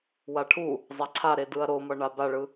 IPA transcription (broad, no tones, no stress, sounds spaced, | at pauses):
w a ʈʰ u | zˤ a ǀʰ a ɾ e d ɯ ɐ̯ ɾ o m ʌ ɳ a b a ɭ ɯ